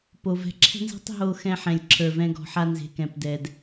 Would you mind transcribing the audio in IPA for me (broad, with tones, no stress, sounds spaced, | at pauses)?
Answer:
p o˩ v ɛ̤˨ ǁʰ ɛ̤˦ n z e̤˦ tˤ ɦ o˨ x ɛ̃˨ ħ ɛ̃˩ lʲ ǁʰ ə˞˩ v ɛ̃˨ ɡ ɔ̤˩ ħ a˨ n z e̤˩ k ɛ̃˩ p d ɛ˩ d